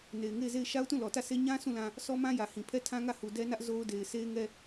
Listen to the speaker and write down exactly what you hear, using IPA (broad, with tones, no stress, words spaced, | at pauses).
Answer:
ne˨ɪ̯ŋe˦˨ɪ̯ze˦˨ɪ̯ ʃa˦ʊ̯tũ˦˨ lɔ˨tä˦˨sʰe˦ ɲã˦ sũ˦˨lã˦ | sɔ˦mã˦jä˨hĩ˨ pʰɛ˦˨tʰã˦ŋä˦˨hu˨ dɛ˦nä˦ʔ zo˦ʊ̯de˨ɪ̯ sʰe˦ɪ̯ŋɛ˦